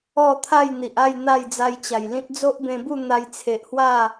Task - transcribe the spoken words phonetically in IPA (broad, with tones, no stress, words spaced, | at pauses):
ɔ˥˧ t̪ʰa˥˧jn̪i˨ʔa˥˧j n̪a˥˧jd͡za˧jt͡ɕa˨˩jlĩ˦t̚ d͡zo˦ʔbẽ˧bu˥˧ n̪a˧jt͡sʰe˨ʔhwa˥˧